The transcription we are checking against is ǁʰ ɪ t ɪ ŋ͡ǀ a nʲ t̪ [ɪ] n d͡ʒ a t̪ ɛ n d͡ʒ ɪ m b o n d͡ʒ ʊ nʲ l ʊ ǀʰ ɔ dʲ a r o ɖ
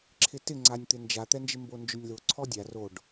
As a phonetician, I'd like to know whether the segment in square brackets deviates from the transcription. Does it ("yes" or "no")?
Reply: no